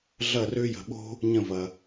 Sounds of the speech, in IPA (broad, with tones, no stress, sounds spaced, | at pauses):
ɮ ɐ˥˧ r ø˥ j ə̤˧ ɓ o̤˥ | ɲ ə̃˥˧ v ɐ˧